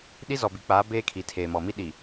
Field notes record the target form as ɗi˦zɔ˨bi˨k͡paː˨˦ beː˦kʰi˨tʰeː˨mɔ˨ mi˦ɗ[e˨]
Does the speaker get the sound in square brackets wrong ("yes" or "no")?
yes